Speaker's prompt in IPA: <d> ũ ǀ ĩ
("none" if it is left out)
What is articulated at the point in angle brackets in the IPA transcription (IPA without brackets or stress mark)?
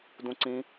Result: d